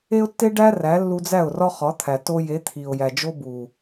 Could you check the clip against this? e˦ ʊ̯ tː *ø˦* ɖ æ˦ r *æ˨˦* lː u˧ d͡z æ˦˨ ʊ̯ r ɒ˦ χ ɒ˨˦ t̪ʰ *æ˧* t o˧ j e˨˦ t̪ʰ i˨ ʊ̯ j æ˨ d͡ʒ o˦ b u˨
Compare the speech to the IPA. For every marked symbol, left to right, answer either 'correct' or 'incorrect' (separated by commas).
incorrect, correct, incorrect